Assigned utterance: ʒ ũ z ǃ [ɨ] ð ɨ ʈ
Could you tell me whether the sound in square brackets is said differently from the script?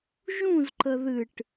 yes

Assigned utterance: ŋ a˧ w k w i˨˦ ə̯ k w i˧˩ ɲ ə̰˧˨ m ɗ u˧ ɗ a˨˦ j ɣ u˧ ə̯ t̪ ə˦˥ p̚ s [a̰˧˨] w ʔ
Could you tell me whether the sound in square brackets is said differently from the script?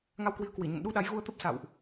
no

